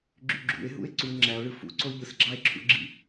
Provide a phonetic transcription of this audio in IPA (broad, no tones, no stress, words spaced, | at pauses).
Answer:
ɡ͡ǁyɡ͡ǁṵe̯ɦṵe̯ ǀu ŋ͡ǁæo̯ɭɯ fṵǀo ʎɯsɡ͡ǁɑe̯ǁʰṵɡ͡ǁḭ